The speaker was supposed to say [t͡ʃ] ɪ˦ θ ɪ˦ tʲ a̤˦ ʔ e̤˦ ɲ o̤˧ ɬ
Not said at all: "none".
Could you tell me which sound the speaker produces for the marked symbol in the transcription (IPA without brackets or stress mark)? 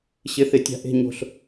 ɕ